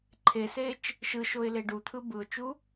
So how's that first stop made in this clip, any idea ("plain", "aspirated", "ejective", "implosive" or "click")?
click